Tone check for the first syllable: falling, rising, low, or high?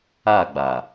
falling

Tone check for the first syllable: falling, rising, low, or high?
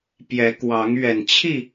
rising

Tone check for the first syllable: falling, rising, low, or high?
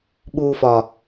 low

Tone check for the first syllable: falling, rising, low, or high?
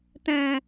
low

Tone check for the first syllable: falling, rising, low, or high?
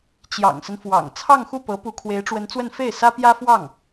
low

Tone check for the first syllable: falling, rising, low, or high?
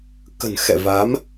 low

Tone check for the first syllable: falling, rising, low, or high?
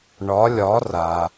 rising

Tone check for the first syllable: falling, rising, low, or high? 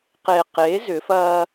low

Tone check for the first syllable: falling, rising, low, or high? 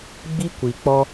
high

